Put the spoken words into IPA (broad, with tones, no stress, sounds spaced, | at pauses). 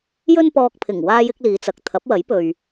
j ɵ˥ n p ɔː˧ k̚ pʰ ɪ˨˩ ŋ w aː˥ j ɪ˥ k̚ l iː˨˧ t͡s ɐ˨ k̚ t̪ʰ ɐ˨˥ p̚ w ɐ˨˥ j p ɵ˨ ɥ